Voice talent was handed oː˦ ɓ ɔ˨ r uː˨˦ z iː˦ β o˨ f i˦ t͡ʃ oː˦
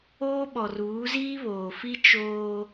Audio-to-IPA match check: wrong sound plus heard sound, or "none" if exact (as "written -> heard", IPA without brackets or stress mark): o˨ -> oː˨